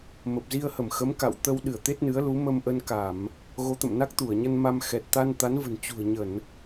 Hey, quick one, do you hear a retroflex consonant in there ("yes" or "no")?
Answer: no